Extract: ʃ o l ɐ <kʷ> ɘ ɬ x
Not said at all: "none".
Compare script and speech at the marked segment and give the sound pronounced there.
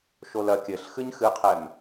kʲ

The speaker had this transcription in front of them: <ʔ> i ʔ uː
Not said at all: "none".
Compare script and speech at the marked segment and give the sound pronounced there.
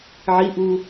ʕ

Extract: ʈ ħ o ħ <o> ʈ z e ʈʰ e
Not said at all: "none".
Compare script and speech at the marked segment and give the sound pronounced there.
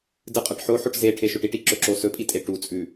o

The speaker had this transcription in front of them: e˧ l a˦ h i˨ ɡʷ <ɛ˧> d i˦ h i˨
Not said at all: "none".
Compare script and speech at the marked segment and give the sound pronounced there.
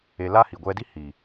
ɛ˧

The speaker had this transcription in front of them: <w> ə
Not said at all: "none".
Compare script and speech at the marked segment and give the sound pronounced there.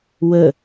w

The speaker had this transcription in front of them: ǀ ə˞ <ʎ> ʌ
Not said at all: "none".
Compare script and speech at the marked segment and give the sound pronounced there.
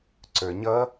ɲ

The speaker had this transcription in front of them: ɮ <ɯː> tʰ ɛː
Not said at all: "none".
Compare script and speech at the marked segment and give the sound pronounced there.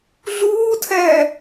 uː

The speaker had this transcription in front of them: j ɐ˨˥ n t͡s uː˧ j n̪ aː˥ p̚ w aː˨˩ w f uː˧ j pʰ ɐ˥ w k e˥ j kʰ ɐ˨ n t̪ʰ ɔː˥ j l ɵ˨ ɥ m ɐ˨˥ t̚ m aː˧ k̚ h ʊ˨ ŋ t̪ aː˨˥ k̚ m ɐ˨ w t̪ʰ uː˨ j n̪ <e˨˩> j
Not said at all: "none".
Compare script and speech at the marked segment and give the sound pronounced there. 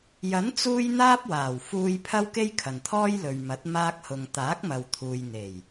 e˨˩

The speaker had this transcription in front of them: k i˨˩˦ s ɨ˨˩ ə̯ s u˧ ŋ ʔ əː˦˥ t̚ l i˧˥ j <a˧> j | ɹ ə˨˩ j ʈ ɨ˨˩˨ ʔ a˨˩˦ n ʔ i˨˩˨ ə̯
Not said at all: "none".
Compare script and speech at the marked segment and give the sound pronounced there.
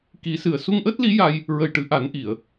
a˧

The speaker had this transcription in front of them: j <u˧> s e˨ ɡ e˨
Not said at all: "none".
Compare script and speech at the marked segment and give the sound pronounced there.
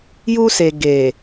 u˧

